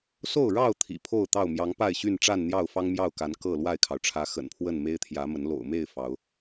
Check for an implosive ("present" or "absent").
absent